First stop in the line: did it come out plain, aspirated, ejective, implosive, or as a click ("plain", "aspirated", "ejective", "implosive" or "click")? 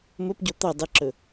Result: plain